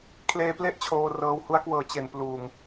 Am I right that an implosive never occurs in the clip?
yes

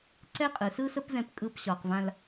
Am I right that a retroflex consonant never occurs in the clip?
yes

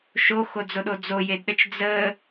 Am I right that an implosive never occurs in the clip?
no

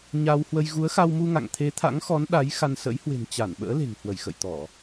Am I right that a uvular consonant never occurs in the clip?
yes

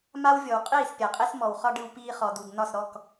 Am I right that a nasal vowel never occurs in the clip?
yes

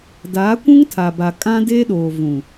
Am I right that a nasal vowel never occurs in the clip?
no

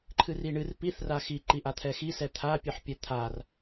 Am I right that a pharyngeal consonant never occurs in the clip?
no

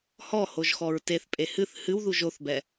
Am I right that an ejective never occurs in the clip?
no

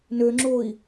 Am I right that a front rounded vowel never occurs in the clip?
no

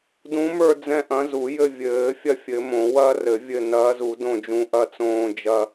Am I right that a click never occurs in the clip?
yes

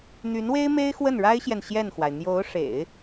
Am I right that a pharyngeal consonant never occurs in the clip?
yes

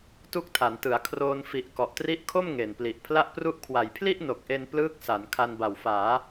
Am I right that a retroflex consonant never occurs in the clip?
yes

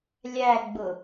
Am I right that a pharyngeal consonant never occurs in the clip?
yes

